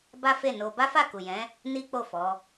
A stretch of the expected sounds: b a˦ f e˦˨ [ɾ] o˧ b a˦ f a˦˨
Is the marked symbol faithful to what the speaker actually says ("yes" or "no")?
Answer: no